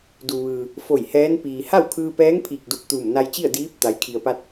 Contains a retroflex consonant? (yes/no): no